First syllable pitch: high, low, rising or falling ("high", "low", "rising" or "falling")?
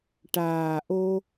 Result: low